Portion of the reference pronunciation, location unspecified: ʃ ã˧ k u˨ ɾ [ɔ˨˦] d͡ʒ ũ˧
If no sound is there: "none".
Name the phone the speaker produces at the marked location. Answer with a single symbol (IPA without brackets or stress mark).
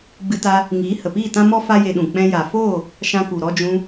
ɔ˧